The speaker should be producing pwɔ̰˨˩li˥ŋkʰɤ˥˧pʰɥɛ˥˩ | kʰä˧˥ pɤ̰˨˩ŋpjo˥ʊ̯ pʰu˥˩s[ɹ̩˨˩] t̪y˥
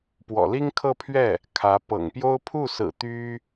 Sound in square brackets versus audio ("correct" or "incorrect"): correct